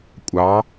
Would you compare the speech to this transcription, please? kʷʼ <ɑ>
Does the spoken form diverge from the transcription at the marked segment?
no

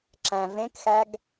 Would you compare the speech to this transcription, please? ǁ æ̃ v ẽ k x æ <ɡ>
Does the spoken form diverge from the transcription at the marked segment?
no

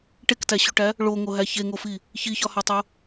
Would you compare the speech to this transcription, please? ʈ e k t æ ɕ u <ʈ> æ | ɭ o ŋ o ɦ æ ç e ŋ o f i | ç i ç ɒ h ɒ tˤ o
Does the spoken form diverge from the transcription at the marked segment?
no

